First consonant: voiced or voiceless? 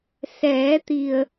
voiceless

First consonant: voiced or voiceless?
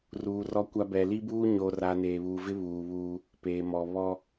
voiced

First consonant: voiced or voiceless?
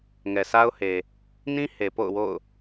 voiced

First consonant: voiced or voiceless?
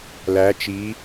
voiced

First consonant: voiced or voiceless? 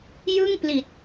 voiced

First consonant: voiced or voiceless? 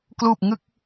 voiceless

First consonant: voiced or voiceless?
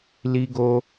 voiced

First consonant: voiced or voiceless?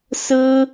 voiceless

